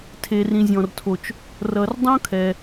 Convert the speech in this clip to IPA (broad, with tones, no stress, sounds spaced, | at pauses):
tʰ e˩ r ĩ˩ zʲ ɔ̃˩ r tʰ o˩ t͡ʃ | r ʌ˩ r dˤ õ˦˥ kʰ ɛ˩